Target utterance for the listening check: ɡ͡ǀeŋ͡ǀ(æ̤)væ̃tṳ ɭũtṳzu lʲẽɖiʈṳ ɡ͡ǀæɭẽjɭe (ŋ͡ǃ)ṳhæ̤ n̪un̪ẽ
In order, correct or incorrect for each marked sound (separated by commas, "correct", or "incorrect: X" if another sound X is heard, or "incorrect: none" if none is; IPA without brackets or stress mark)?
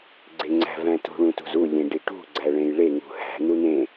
correct, incorrect: ŋ